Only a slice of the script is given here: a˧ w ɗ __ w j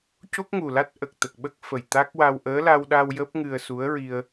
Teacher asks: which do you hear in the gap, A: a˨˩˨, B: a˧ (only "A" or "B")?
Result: B